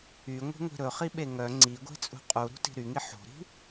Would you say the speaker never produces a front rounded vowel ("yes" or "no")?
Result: no